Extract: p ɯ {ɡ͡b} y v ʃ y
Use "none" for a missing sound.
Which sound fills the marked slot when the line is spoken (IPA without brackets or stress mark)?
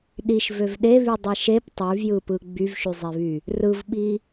ɡ͡b